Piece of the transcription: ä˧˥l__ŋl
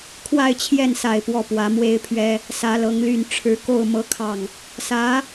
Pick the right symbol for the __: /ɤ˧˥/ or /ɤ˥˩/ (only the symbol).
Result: ɤ˧˥